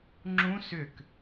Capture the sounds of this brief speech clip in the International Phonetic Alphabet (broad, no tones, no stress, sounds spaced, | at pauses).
ŋ͡ǁ ũ s ʏ k